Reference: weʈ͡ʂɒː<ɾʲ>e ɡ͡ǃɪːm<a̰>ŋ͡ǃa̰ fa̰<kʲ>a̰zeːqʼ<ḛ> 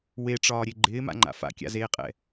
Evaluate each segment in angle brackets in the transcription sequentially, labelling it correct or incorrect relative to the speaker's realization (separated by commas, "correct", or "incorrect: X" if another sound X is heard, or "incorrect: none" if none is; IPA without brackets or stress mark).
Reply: correct, correct, correct, incorrect: ɛ̰